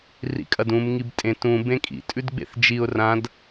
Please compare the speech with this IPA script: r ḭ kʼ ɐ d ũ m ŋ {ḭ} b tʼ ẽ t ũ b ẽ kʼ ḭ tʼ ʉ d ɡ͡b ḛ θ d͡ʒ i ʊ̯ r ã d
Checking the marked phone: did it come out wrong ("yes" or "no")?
yes